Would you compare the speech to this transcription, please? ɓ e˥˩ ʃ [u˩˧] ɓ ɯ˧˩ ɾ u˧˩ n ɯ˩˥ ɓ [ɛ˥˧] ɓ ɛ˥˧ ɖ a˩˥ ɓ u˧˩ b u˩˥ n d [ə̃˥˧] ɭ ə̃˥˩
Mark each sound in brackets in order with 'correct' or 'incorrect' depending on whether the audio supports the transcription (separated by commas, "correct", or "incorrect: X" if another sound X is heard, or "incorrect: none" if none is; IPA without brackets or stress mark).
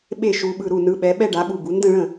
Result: correct, incorrect: ɛ˩˥, correct